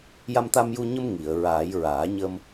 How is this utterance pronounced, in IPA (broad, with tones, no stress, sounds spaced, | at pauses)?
j a˧ m t̪ a˧ m j u˧ ɲ ə˧ m ŋ i˨˩˨ ə̯ ɹ aː˨˩˦ j ɹ aː˨˩˦ ɲ ə˧ m